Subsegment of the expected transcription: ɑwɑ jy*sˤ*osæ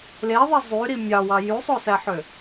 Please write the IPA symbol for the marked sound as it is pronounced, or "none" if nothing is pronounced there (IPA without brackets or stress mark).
sˤ